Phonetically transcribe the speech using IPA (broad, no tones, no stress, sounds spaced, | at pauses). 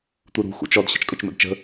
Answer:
t̪ u ɾ ṳ x ṵ t͡ʃ ɔ d ɕ ə̤ t͡ʃ kʼ ɵ t͡ʃ m ə̰ d t͡ʃ ə̤